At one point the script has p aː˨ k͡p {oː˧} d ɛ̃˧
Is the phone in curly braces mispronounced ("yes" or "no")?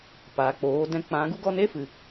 yes